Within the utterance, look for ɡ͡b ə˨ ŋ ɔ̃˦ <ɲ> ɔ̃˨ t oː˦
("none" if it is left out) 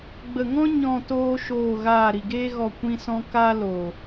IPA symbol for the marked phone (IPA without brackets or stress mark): ɲ